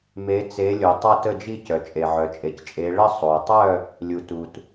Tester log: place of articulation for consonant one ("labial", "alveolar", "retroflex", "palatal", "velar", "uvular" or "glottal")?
labial